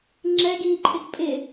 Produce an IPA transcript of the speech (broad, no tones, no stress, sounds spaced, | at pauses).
ŋ͡ǁ ɛ ɡ iː ǃʰ ɪ ɡ pʼ ɪ